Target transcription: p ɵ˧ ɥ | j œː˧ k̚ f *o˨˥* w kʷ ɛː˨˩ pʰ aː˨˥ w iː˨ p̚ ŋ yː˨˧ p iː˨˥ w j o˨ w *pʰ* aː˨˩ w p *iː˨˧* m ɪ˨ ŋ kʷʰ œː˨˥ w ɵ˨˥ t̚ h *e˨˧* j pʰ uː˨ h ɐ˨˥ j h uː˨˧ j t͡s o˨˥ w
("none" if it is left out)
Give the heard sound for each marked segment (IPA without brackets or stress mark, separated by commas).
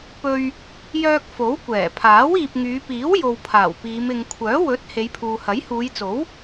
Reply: o˨˥, pʰ, iː˨˧, e˨˧